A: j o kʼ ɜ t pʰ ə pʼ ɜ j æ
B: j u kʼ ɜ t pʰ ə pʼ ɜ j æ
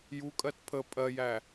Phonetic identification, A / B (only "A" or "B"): B